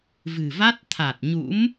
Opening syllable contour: low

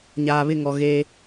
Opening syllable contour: low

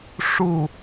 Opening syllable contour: falling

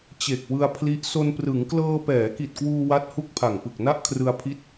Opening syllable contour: low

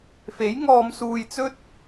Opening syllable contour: rising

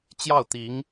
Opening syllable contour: falling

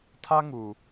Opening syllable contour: high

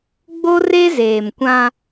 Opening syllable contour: high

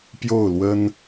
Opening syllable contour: falling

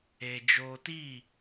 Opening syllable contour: low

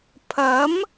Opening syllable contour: rising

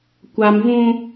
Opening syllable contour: high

